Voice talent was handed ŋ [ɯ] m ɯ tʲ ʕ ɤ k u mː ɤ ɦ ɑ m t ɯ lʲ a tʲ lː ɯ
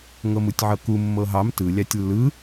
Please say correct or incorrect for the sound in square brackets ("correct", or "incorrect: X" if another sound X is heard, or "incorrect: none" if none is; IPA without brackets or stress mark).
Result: incorrect: ɤ